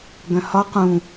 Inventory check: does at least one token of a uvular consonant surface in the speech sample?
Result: yes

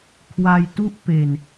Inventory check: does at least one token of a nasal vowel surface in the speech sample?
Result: no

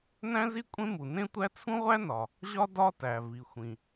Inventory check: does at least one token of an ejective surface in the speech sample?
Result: yes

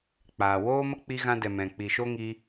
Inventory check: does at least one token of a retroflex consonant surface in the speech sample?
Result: no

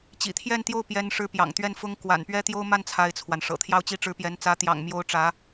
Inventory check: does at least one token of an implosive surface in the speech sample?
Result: no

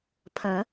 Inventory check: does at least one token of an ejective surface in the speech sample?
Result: no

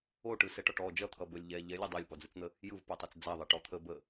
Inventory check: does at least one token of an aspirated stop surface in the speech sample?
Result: yes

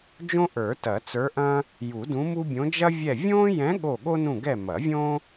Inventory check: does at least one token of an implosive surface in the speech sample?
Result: yes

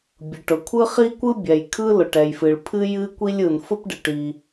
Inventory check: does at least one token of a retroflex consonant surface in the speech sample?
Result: yes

